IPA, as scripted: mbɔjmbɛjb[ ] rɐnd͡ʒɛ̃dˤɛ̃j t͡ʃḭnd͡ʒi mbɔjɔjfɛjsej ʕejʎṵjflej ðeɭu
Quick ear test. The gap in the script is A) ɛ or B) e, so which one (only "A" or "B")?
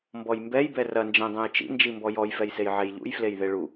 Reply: A